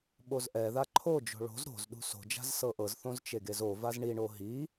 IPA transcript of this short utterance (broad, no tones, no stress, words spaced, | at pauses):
ɓozʔɛða ǃʰod͡ʒo̤ ɭo̤z ɾo̤zɗṳ so̤d͡ʒa̤z sɤʔɤzθõz t͡ʃeɡezovaz ɳiɳo ɦi